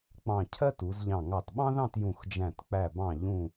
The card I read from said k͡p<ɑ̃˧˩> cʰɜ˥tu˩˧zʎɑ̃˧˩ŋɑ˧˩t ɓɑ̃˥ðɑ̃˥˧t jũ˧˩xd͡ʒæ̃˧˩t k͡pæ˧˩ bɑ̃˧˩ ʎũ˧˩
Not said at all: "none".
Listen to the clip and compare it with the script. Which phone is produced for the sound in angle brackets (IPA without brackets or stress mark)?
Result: ɑ̃˧˩